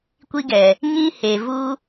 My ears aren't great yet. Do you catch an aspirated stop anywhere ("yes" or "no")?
no